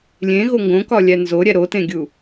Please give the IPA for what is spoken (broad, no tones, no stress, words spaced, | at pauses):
lʲẽɣo ŋɡõkɒlʲæ nzoɾʲæ ɾotẽɡʲu